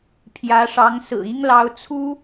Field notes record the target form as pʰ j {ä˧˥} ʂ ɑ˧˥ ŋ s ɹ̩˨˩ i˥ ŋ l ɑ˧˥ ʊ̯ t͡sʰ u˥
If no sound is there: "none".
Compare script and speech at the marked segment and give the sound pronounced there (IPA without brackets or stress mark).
ä˧˥